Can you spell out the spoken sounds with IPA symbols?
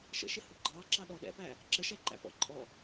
ʃ ə̰ ʃ ɪ h u ɡ͡ǃ ɑ ǁ ɑ ɗ ɔ ɗ ɛ̰ p æ | ǁ ə ʃ ɛ ǃ æ̰ p ɔ̰ ǃʼ ɔ

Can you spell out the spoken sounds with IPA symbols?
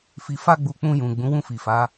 f i˧ f a˦ ɡ͡b u˧ k͡p ũ˧ j ũ˨ ɡ͡b ũ˨˦ w ũ˦˨ f i˨ f a˨˦

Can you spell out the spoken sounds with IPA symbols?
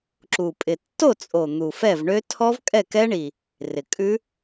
ǁ u˨˩ pʼ ɪ˨˩ tː o˥˩ t͡sʼ o˨˩ n̪ u˨˩ f ɛ˥˩ v ɳ ø˦˥ tʰ ɔ˦˥ v kʼ ɛ˥˩ k ɛ˦˥ ɳ i˨˩ | r ɪ˨˩ kʼ ʉ˦˥

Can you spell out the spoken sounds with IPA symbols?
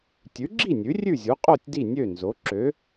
tʲ ʉ˩˥ ɡ͡ǁ i˥˩ nʲ ʉ˩˥ rʲ ʉ˥˩ zʲ u˩˥ qʼ o˥˩ tʲ d i˥˩ nʲ ø˥˩ n z o˩˥ ǁ ø˩˥

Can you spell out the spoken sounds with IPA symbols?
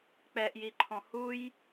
k͡p ɛ ʔ j i ǃʰ ɔ̃ h u j

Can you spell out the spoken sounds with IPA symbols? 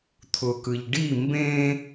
t̪ʰ ʊ k ɯ ʎ ɖ i m b ẽ

